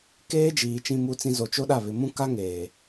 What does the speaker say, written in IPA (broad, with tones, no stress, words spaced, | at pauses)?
keː˦d͡ʒiː˨ t͡ʃĩ˦mu˦t͡sĩ˦ zo˨ t͡ʃo˦ɗa˦˨ βɪ˨mũ˦ka˦ ŋeː˨